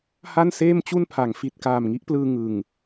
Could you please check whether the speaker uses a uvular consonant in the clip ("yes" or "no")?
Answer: no